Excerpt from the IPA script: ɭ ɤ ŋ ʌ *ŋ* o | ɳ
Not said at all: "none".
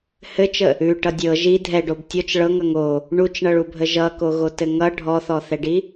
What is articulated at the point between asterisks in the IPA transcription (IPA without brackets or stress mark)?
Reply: ŋ